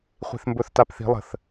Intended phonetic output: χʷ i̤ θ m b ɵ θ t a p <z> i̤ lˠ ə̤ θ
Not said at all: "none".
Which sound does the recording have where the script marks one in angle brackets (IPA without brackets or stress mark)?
θ